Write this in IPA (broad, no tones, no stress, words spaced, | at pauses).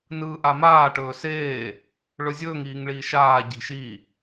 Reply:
nɯːʔamaː ʈɵːseː | ɭɵzʲɵːŋ iːŋɭiːʃaː ɟi̤ʃi